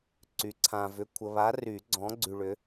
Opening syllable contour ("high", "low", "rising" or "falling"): rising